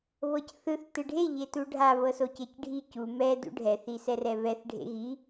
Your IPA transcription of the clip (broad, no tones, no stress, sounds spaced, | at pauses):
β ɤ c θ ɯ θ t ɯ ɖʱ e ʎ e t u ɖʱ a β ɤ s o c e c ɖʱ i c u m ɛ d ṵ ɖʱ ɛ θ i s ɛ r ɛ β ɛ θ ɖʱ ḛ ɣ i